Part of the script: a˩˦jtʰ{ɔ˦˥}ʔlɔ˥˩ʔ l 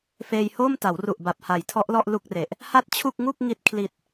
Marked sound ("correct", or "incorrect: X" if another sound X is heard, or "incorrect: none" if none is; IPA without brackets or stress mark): correct